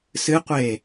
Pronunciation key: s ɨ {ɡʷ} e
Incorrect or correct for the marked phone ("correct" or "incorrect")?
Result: incorrect